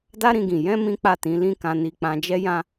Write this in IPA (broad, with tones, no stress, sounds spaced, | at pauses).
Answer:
d a˦ ɾ ĩ˧ ɡ ĩ˨ j ɛ̃˧ m ĩ˦ k͡p a˦˨ t ĩ˨˦ l ĩ˦ k ã˧ n i˧ k͡p ã˧ d͡ʒ ɛ˦ j ã˦